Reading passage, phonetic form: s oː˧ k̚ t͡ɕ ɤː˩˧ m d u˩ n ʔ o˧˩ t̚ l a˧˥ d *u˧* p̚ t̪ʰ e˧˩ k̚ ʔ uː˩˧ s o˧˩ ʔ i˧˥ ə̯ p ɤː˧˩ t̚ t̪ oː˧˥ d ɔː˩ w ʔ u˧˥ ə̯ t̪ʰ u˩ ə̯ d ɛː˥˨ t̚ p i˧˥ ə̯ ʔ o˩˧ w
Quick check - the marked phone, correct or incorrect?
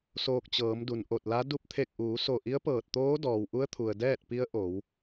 correct